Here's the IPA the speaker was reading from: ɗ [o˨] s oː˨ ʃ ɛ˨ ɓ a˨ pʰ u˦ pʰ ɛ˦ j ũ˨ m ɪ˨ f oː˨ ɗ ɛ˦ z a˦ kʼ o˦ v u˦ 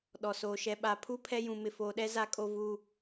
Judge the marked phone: incorrect: ɔ˨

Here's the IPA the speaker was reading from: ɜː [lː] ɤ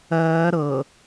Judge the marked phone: incorrect: ɾ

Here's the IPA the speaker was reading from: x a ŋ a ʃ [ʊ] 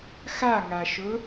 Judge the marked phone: correct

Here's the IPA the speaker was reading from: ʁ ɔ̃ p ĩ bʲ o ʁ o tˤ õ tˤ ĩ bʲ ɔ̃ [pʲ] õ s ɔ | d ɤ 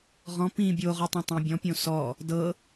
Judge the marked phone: correct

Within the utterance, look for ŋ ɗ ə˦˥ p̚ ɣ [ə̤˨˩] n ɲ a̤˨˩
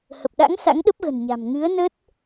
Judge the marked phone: correct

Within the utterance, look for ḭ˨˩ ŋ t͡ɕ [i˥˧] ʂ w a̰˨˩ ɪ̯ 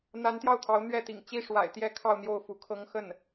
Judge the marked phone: incorrect: i˥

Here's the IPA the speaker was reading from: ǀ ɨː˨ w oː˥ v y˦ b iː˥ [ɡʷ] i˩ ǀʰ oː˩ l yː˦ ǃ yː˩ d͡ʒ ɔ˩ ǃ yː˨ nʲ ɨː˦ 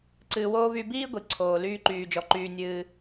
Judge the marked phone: correct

